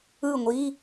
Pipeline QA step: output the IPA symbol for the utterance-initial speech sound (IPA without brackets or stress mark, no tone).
ɯ